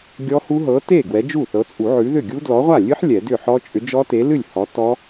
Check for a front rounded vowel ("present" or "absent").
present